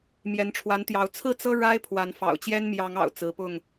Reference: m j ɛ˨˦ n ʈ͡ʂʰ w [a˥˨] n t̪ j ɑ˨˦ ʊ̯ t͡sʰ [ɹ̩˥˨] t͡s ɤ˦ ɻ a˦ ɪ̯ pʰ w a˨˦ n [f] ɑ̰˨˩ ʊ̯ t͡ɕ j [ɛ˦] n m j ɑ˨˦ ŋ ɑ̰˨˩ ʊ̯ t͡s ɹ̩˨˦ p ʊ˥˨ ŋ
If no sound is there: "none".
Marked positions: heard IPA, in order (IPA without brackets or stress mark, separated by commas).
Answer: a˨˦, ɹ̩˥˨, f, ɛ˦